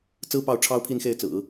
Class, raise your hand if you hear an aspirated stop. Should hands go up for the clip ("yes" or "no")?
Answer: yes